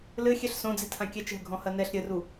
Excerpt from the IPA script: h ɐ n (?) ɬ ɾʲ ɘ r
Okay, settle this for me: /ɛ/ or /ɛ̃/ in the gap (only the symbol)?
ɛ